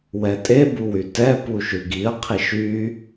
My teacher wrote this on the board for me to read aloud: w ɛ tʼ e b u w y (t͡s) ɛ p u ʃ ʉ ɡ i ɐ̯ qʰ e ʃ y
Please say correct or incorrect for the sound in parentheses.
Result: incorrect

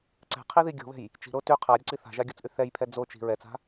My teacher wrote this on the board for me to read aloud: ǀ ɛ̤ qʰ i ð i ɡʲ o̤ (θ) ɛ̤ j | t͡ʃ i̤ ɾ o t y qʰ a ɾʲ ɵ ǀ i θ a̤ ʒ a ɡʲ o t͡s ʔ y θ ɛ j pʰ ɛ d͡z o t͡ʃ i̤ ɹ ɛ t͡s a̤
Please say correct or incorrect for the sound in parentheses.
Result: incorrect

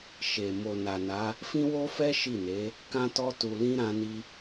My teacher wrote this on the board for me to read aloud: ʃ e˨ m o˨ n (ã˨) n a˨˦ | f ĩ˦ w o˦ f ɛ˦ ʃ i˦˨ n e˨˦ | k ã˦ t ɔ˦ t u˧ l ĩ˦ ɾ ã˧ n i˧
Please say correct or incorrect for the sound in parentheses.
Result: incorrect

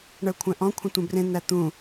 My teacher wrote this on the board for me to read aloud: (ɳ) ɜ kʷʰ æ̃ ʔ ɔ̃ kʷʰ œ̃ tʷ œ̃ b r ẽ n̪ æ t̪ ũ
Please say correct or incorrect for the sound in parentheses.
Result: correct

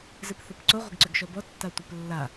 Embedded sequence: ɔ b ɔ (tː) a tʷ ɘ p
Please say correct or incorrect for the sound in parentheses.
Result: correct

